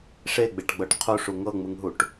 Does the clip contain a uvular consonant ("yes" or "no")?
yes